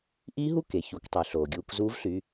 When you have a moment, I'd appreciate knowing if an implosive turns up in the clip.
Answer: no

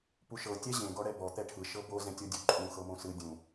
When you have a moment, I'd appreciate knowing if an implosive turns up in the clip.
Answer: no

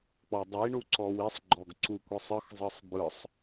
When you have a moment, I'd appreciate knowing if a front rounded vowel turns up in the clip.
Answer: no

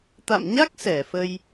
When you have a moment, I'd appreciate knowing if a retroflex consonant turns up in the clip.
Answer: no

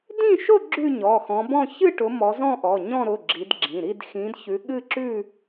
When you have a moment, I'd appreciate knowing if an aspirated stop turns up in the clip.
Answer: no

